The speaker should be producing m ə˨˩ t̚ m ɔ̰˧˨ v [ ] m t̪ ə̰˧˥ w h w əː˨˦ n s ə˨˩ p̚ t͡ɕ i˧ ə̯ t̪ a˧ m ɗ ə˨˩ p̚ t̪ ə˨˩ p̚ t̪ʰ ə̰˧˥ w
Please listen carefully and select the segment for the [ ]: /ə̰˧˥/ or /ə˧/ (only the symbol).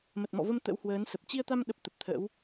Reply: ə˧